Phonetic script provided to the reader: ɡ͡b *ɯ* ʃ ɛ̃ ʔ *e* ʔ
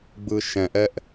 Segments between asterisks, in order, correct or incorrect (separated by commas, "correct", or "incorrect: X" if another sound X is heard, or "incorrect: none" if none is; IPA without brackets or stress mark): correct, incorrect: ɛ